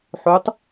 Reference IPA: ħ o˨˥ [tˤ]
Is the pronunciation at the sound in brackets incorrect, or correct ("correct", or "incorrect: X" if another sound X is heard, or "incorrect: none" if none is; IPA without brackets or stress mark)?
correct